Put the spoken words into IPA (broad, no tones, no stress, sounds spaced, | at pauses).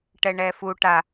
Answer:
ʈ ɛ ɳ ɛ f u ʈ a